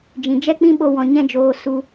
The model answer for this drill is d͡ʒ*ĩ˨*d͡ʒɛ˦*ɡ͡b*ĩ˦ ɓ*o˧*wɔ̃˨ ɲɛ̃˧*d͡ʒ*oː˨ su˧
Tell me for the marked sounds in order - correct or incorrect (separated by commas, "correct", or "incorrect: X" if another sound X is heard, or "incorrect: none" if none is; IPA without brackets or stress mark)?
correct, incorrect: k͡p, correct, correct